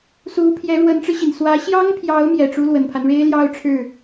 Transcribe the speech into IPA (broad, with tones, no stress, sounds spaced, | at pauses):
s u˧˥ pʰ j ɛ˧˥ ɻ w ə˧˥ n ʈ͡ʂ ɻ̩˧ ɕ i˩ n s w ä˧˥ ɕ j ɑ˥ ŋ pʰ j ɑ˧˥ ʊ̯ m j ɛ˨˩ ʈ͡ʂ u˥ l w ə˨˩ n pʰ a˦ n ɻ e˥ ɪ̯ l j ɑ˥˧ ʊ̯ ʈ͡ʂʰ ɻ̩˥˩